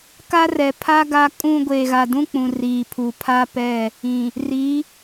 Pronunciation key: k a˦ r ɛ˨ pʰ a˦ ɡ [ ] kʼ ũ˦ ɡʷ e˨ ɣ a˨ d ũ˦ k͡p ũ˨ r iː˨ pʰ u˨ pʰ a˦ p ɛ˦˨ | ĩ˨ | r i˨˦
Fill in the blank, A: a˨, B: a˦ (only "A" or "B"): B